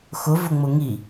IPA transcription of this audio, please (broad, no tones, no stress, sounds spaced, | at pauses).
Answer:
x ʊ v ʊ ŋ͡m ʊ ŋ i